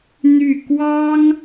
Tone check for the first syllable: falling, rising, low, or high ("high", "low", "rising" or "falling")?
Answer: falling